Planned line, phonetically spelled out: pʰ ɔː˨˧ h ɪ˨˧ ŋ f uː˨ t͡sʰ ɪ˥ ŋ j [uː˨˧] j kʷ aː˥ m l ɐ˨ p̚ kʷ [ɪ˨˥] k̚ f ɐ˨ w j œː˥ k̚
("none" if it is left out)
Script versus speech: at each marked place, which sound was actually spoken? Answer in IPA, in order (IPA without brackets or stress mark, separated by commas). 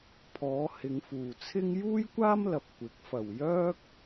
uː˥, ɪ˨˥